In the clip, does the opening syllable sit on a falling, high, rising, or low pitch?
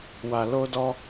low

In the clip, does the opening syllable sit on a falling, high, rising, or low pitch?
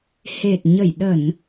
low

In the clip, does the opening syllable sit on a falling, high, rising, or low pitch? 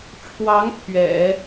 rising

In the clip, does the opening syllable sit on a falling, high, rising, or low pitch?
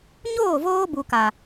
falling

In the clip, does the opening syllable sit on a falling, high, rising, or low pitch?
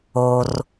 low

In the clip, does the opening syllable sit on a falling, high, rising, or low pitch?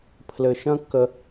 low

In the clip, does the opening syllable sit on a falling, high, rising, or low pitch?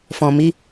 low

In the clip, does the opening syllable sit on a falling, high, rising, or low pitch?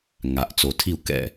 low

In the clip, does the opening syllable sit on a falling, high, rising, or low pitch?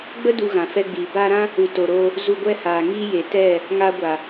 high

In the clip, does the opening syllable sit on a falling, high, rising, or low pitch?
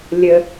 high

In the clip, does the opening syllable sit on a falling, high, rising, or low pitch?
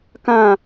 falling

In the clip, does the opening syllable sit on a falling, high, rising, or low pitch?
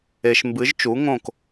low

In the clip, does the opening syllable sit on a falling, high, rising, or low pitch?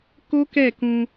high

